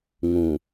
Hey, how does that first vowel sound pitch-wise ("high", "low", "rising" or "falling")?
low